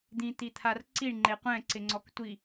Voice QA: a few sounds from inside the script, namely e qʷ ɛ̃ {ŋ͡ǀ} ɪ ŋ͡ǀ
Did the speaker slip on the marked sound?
yes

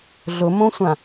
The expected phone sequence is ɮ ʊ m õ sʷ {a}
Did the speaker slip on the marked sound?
yes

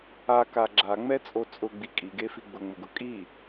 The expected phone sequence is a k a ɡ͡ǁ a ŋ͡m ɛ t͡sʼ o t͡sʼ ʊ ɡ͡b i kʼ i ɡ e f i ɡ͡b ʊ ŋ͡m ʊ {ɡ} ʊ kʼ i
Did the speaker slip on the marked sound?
no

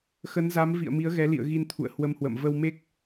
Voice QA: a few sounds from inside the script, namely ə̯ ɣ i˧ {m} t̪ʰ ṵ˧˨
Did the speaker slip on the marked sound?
yes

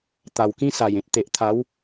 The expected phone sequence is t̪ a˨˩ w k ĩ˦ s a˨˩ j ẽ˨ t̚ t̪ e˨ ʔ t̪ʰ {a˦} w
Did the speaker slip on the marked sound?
yes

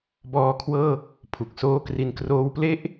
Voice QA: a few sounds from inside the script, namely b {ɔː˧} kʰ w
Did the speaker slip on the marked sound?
no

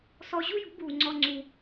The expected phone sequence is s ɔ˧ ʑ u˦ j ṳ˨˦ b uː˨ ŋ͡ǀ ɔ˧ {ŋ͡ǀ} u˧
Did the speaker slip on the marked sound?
no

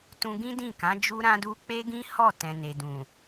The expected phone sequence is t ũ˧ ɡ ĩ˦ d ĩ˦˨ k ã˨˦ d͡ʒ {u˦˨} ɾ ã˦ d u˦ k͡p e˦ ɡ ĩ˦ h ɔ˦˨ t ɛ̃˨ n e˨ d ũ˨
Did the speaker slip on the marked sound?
yes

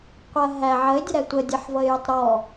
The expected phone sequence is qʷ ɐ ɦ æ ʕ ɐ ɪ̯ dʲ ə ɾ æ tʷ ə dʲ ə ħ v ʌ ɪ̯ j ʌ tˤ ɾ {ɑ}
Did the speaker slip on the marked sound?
yes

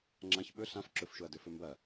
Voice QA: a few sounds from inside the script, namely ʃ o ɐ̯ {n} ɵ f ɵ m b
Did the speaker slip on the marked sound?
yes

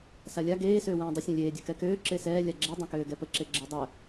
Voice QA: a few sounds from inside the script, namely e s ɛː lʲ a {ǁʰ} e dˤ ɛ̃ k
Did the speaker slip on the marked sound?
yes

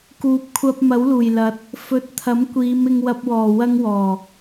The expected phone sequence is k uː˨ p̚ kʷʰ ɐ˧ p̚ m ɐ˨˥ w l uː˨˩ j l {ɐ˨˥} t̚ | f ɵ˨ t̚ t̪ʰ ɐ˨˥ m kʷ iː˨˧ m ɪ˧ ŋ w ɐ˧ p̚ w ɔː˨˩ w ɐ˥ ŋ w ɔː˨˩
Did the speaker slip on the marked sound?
no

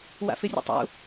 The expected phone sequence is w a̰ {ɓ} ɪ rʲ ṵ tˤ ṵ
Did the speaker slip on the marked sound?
yes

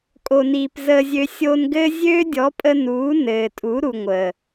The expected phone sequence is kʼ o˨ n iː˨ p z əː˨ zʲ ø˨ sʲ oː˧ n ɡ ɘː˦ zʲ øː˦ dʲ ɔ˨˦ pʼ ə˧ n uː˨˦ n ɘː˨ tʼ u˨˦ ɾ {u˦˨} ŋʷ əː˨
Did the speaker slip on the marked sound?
yes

